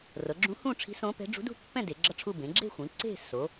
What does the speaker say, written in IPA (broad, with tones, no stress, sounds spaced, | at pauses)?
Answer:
r ɤ˩˧ ɡ͡ǁ ũ˧˥ h ũ˥˧ ʈ͡ʂʰ i̤˧˥ s õ˧˥ p ɛ̤˧˥ ɖ͡ʐ ṳ˧˥ d ṳ˥˧ pː ɛ̃˥˧ d e˩˧ ɡ͡ǁ ʌ˥˧ ʈ͡ʂʰ u˥˧ b ẽ˩˧ ɡ͡ǁ e̤˥˧ xʷ ĩ˩˧ ǀ e̤˥˧ s o˩˧